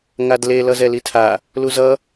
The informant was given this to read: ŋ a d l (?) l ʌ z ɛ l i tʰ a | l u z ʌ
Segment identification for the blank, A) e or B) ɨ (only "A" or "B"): A